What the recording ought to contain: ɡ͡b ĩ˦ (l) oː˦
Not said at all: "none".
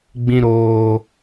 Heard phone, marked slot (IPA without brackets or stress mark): ɾ